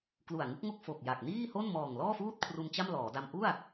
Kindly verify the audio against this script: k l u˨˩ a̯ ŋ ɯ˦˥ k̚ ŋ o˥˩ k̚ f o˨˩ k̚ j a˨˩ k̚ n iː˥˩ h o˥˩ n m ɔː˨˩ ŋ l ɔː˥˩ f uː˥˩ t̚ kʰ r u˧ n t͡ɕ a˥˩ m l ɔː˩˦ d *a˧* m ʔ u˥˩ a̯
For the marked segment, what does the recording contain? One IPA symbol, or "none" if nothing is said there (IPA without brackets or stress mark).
a˧